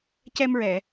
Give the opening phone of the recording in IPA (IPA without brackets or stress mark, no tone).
c